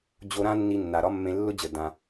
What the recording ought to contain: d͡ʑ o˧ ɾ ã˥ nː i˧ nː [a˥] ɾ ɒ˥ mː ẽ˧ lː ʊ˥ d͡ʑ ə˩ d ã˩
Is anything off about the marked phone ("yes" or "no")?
yes